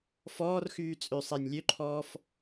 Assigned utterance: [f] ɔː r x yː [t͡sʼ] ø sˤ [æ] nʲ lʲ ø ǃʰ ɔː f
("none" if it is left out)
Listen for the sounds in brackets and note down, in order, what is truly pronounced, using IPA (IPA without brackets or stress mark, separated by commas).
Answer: f, t͡sʼ, æ